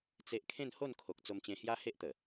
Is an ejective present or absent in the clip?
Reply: absent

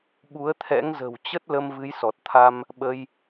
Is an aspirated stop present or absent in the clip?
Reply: present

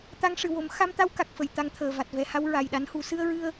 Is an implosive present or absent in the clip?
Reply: present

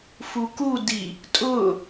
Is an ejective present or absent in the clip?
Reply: present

